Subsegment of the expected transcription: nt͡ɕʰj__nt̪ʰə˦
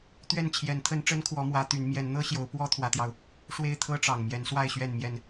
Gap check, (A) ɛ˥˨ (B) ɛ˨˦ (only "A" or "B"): B